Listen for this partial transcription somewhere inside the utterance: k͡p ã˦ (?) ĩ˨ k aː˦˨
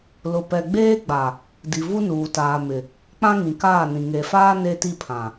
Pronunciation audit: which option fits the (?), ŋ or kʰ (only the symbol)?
ŋ